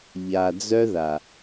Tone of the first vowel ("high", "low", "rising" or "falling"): low